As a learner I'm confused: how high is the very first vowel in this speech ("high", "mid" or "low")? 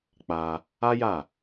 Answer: low